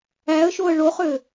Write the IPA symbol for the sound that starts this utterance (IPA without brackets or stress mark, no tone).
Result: æ